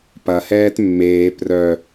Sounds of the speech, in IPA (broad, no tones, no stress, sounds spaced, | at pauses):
p ɐ h ɛː t mː eː p r œ